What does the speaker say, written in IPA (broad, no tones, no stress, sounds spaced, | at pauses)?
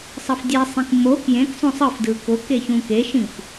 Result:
sˤ ɤ f dʲ e sˤ ĩ k m o k j ẽ k sˤ õ sˤ ɯ f d ɯ k o k e ç ũ k e ʃ ĩ f